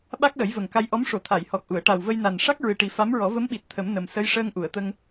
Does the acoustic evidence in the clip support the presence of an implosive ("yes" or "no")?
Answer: yes